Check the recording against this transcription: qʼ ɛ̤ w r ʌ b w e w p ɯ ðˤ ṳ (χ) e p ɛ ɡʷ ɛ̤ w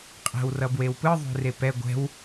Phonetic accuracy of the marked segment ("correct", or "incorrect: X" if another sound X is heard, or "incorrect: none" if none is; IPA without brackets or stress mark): incorrect: r